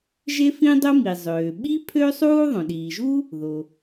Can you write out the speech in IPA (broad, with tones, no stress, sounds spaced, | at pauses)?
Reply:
ʒ e˥ f ĩ˥ dˤ o˥ m i˩ zˤ øː˩ ɓ i˥ pʰ ø˥ sˤ uː˥ ðˤ õ˩ ɗ iː˩ ʒ u˥ | ð o˩